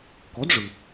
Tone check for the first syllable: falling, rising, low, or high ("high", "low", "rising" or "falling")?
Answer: rising